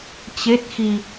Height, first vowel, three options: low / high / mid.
mid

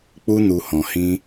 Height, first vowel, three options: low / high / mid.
high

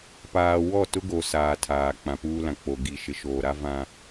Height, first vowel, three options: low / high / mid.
low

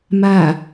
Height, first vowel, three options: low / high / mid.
low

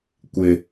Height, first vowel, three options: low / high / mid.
high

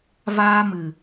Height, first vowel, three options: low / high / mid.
low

